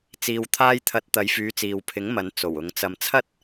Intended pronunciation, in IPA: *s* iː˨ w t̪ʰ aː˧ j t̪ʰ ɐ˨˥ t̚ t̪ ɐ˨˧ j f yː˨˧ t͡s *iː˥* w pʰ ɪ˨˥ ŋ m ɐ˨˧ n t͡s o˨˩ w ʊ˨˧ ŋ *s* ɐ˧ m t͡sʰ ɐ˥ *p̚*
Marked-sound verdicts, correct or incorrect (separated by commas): incorrect, incorrect, incorrect, incorrect